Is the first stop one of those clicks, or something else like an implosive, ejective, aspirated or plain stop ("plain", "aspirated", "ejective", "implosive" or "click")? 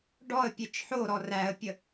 plain